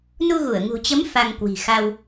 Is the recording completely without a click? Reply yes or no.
yes